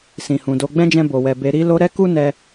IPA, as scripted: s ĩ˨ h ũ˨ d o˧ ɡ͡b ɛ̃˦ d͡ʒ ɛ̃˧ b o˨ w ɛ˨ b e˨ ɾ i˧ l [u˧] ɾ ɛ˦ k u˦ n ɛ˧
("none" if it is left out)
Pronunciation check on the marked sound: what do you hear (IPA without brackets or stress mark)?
o˧